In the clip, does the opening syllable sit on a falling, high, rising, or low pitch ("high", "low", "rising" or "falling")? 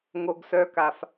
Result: low